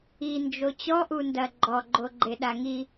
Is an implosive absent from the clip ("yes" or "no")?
no